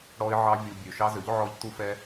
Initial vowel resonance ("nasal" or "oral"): oral